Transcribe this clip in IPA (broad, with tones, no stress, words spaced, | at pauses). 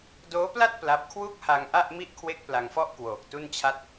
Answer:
doː˦˥pla˥˩t̚ pla˦˥p̚ kʰwu˥˩k̚ha˧ŋ ʔa˥˩ʔmi˥˩ʔ kʰwe˥˩k̚pla˧ŋfɔ˥˩ʔ kwoː˨˩k̚tu˥˩nt͡ɕʰa˥˩t̚